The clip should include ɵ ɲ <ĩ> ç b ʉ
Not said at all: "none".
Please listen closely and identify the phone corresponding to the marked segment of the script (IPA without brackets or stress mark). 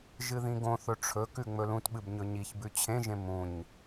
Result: i